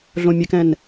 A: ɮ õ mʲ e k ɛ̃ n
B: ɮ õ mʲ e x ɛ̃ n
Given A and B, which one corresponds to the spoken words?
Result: A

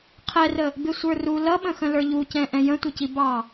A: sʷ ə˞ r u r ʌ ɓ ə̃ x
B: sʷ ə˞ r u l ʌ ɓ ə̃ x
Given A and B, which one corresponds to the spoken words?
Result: B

